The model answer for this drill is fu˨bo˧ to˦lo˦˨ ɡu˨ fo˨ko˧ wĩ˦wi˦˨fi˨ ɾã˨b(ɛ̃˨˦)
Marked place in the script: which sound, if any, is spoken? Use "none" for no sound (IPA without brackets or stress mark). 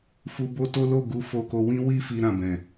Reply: ɛ̃˨